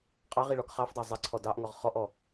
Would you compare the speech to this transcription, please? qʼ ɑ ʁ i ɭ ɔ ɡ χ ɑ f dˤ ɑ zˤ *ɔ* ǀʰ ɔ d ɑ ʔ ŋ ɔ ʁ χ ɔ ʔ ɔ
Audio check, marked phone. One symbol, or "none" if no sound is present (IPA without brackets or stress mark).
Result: ə